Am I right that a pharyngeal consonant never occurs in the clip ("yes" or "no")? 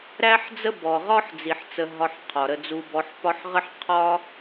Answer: no